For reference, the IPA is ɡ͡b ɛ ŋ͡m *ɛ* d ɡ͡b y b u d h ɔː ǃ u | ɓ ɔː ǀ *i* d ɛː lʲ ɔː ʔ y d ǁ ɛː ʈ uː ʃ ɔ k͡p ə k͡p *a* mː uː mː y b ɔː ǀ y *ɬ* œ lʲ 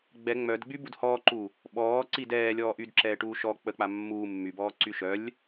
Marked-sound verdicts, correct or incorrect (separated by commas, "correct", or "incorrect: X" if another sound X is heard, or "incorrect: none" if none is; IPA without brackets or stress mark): incorrect: œ, correct, correct, incorrect: ʃ